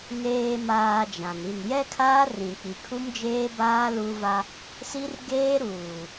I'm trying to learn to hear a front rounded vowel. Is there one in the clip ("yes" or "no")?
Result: no